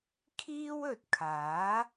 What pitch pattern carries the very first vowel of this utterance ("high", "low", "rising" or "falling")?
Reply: high